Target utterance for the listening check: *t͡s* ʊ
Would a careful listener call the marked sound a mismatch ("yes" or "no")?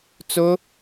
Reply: no